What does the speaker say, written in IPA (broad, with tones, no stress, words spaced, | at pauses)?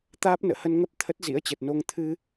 t̪aː˦˥p̚nə̰ː˧˨hə˧nŋə˦˥p̚ t̪ʰə˦˥t̚zḭ˧˥ə̯t͡ɕə˨˩t̚no˧ŋ t̪ʰɨ˧